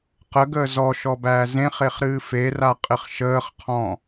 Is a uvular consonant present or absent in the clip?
present